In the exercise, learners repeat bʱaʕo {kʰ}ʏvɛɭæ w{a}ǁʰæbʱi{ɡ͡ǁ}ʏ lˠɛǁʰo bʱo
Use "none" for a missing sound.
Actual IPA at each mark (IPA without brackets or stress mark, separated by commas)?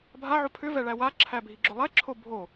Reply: pʰ, a, ɡ͡ǁ